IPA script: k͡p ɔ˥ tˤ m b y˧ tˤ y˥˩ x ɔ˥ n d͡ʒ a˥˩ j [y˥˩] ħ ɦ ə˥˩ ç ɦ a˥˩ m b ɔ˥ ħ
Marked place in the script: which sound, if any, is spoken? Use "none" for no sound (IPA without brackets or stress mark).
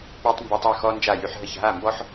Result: y˧